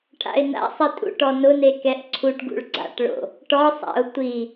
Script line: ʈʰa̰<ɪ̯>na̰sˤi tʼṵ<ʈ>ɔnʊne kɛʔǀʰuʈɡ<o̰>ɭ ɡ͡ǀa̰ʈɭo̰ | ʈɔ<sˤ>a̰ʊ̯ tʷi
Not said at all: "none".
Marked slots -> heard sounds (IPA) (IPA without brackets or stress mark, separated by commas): ɪ̯, ʈ, ṵ, sˤ